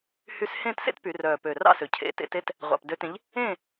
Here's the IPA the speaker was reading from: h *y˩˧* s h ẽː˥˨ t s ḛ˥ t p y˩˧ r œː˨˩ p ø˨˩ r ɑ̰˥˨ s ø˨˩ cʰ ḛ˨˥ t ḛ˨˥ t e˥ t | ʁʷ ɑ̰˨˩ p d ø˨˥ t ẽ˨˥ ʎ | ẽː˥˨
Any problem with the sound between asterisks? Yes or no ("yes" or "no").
yes